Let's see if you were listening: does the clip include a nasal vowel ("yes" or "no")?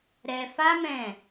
yes